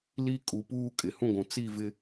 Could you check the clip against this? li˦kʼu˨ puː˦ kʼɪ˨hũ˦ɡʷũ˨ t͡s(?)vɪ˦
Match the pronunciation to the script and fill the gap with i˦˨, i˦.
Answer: i˦˨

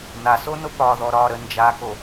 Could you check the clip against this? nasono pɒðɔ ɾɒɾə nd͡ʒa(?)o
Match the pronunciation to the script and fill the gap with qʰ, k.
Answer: k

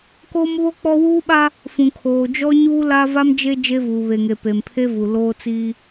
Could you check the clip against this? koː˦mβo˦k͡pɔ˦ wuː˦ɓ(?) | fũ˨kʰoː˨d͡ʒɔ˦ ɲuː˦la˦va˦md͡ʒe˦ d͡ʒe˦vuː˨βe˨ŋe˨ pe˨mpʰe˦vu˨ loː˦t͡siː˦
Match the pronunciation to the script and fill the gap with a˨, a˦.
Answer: a˦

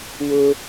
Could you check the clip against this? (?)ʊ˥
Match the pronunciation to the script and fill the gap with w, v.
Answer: w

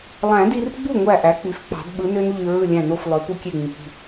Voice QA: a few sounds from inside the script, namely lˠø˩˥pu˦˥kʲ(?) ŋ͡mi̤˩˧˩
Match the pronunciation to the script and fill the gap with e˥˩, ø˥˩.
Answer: e˥˩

